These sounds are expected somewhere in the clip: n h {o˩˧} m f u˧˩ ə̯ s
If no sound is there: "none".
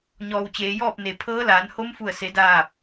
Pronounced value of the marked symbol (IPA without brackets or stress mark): o˧˥